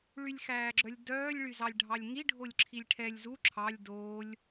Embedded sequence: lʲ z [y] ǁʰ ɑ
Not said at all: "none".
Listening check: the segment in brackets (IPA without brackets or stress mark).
u